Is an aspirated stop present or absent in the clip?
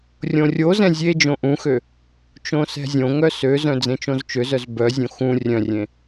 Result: absent